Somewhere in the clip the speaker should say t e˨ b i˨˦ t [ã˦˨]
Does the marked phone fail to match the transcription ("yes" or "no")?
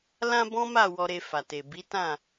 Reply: no